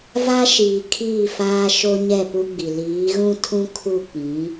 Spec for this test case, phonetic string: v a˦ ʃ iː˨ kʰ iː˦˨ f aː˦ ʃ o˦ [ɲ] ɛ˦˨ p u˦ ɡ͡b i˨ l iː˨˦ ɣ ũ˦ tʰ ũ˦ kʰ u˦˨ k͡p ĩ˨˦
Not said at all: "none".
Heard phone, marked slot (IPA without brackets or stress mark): ɲ